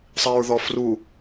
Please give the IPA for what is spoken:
sˤiɹðɔfru

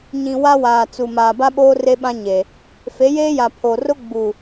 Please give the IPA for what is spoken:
ɲĩ˨ wa˦waː˨t͡su˨ maː˨ba˦ɓoː˦ re˦ɓã˦ ɲe˨ | fe˨˦jeː˦ja˨ pʰo˨rʊ˦ ɡ͡bu˨

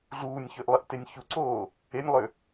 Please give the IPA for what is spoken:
ɮuːnʲçøʔlˠiʔtenʲ çuǀoː | enʲlˠø

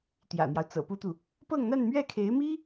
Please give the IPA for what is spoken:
t̪jä̰˨˩n̪jɑ˦ʊ̯t͡sɤ̰˨˩ pu˥t̪u˨ | pɤ˥˧ŋn̪a˥˧nmɥɛ˥˩kʰe˧˥ɪ̯ mi˥

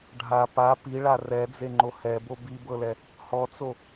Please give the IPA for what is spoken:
ɖʱa pa piɭa rɛd͡zeŋ͡ǃo hɛbo bibɤlɛ | hɔt͡so

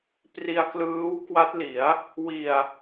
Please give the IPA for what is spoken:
pri˧a̯klɯː˦˥wkwa˦˥t̚li˩˦a̯ | wi˨˩a̯

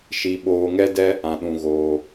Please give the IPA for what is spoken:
ʃi˦ ɓoː˧ŋɛ˦dɛ˦ | ã˧ɗũ˧ɣoː˧

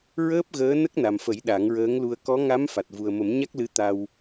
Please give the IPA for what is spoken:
ɹəː˦˥p̚ɣəː˧˥ nə˦˥k̚ na˨˩mfə˨˩˦j ɗa˨˩˦ŋɹəː˧˥ŋlu˧ə̯ kɔ˧˥ŋa˧˥m fa˨˩t̚vu˨˩ə̯mə˨˩˦m ɲa˦˥k̚lɨ˧˥t̪a˧w

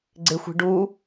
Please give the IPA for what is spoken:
ɡ͡ǀɪxʷi̤ ɖu

